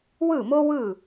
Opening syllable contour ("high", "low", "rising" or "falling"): falling